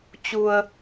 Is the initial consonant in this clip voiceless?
yes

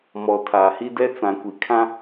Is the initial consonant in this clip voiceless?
no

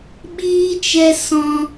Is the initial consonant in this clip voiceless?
no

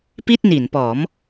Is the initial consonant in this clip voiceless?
yes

